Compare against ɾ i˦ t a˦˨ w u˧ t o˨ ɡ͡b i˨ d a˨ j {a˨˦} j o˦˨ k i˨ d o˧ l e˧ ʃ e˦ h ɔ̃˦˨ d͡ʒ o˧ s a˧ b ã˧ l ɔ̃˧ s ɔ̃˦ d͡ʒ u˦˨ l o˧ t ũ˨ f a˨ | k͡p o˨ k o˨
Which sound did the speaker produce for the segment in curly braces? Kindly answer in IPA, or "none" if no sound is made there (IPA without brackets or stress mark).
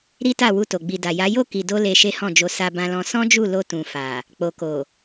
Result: a˨˦